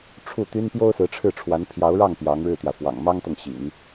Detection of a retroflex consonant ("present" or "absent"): present